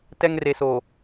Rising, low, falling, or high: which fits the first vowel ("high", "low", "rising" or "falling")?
high